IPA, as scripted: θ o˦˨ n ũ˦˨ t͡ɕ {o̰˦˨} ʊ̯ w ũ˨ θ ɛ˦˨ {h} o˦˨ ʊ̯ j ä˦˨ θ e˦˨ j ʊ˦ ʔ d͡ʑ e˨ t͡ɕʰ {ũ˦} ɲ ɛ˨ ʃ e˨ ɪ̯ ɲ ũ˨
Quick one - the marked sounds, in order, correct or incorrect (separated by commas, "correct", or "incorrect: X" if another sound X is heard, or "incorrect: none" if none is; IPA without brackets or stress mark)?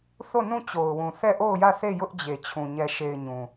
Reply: incorrect: o˨, incorrect: ʔ, incorrect: ũ˨